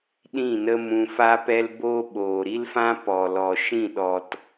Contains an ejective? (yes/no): no